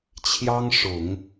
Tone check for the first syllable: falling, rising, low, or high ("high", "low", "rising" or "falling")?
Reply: high